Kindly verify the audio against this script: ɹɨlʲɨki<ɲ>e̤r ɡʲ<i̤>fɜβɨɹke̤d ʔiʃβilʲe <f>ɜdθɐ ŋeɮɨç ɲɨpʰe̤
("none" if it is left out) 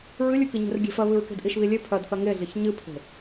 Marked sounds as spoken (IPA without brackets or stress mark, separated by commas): ɲ, e̤, pʰ